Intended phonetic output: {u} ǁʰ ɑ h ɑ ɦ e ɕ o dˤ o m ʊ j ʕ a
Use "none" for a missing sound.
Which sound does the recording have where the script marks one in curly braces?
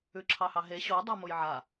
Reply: ʉ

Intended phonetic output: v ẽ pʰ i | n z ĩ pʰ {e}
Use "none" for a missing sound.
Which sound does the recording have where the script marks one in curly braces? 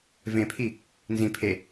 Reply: e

